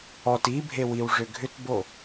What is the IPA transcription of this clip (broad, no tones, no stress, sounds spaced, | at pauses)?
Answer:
ɔ t i bʱ e w i w ʐ ʏ ɡʱ ʏ t b o